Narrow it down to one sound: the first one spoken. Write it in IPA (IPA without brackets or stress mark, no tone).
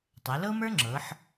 tˤ